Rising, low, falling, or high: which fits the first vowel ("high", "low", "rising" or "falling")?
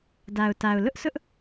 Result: low